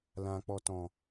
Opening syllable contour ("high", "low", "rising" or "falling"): low